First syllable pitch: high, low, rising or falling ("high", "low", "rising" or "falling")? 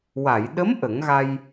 low